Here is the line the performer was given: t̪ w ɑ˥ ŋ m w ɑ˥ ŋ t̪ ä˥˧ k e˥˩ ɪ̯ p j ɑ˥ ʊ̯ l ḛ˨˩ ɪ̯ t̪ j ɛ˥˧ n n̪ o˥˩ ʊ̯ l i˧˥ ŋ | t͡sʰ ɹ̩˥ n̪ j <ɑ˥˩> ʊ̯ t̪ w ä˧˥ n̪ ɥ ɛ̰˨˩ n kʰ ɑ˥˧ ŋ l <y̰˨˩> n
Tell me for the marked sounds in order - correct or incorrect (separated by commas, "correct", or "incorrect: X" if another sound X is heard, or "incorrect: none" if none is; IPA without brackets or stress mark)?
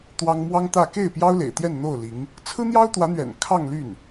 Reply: incorrect: ɑ˥, incorrect: y˥˩